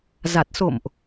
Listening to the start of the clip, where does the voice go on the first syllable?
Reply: low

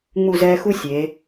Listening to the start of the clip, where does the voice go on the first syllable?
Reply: falling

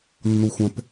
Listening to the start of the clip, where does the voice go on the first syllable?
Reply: low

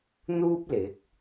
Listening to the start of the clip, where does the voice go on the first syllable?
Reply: high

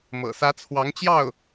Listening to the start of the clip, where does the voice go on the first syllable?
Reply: low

